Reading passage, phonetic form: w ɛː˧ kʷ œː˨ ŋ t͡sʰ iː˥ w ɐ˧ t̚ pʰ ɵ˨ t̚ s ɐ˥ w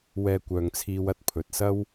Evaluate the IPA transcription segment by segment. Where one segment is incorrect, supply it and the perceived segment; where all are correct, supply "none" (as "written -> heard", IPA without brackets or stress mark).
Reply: iː˥ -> iː˧